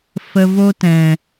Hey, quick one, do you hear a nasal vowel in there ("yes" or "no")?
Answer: yes